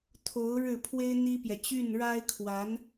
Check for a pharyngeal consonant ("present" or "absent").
absent